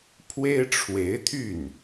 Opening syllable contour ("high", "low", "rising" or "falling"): high